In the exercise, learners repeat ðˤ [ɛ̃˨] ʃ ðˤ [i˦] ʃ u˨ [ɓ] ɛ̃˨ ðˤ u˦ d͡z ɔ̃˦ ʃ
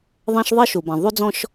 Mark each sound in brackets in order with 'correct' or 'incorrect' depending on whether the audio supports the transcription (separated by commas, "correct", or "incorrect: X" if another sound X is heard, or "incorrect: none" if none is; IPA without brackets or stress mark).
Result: incorrect: ɛ̃˦, correct, incorrect: b